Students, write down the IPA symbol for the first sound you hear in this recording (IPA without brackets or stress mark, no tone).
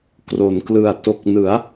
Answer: k